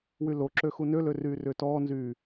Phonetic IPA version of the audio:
w y l o ǁ ø x u n ø l ø r yː r ʏː t ɔː n z yː

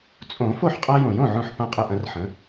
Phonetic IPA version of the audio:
t͡sʼ õ˨˩˦ f o˥˩ ħ qʼ a˦ j õ˨˩˦ j õ˥˩ ʕ õ˥˩ ħ p ã˥˩ qʼ ə˥˩ ʔ ɐ̃˦ r ħ ə̃˨˥

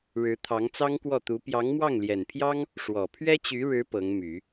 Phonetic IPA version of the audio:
ɻ ɻ̩˧˥ t̪ʰ ɑ˧˥ ŋ t͡s ɑ˥ ŋ k w ɔ˥˩ t̪ u˧˥ p j ɑ˧˥ ŋ m w ɑ˥˩ ŋ l j ɛ˨˩ n pʰ j ɑ˥ ŋ | ʂ w ɔ˨˩ pʰ ɥ ɛ˥ t͡ɕ y˧˥ ɻ ɻ̩˧˥ p ɤ˧˥ ŋ m y˨˩˦

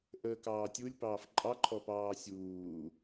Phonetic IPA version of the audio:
ʔ əː k ɑː tʲ u lʲ p ɑː f ǃʼ ɑ ǃʰ ɔ p ɑː sʲ uː

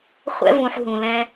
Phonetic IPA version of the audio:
χʷ ɛ̰˧ v ũ˨ ħ ɦ ũ˨ l ɛ̃˧

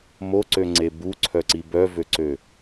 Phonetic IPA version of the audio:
m o ǀ ø ŋ͡ǀ e b u ǀʰ œ ǀ i b œ v ø ǀ ø

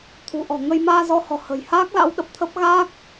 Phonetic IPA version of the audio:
t̪ʰ ṳ˨˩ ʔ ɔ̤˨˩ ŋ ə˧ j m aː˧ z ɔ˧ h ɔ̤˨˩ h ə̤˨˩ j h aː˦˥ k̚ l a̰˧˥ w ɗ ə˨˩ p̚ t̪ʰ ə˦˥ p̚ ɣ aː˦˥ k̚

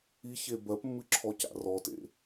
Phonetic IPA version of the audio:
i ç e b ɜ p mː ɨ ǁʰ ɔ c a̰ r ɔ t ḛ

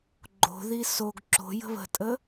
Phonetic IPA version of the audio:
ɡ͡ǃ o̤ ð i s o ɡ ǁ o̤ j ə̤ β ə̤ tʼ ə

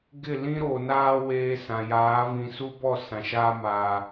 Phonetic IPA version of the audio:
ɡ ɪ˦˨ l ĩ˦ ɾ o˨ n aː˦ w eː˦ s ã˨ j aː˨˦ v ĩ˨ s u˦ b ɔ˦˨ s ã˨ ʃ a˦ m aː˨

